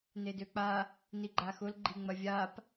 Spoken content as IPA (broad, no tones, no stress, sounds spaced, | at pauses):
n e d ø k͡p a | n i ɡ͡ǃ a x ʊ l ɡ͡ǃ i ŋ͡m ɐ vʲ a p